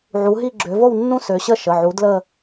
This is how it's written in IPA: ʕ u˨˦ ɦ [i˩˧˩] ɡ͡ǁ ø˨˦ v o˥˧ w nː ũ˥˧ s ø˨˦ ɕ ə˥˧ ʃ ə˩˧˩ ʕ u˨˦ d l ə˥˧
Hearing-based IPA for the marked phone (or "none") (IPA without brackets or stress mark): i˥˧